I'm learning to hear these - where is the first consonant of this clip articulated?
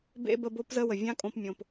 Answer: lips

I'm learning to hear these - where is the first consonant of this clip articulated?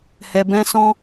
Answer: throat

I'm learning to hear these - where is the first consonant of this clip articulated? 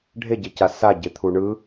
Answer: retroflex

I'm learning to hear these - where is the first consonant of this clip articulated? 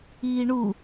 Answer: retroflex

